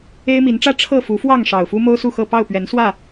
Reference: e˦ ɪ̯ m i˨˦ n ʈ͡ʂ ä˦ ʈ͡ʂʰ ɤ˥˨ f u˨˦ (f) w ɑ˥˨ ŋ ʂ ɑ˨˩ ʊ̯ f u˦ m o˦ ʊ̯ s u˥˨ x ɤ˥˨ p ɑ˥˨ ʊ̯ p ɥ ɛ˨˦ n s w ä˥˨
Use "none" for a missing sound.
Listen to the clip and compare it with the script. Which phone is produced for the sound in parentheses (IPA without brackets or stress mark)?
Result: f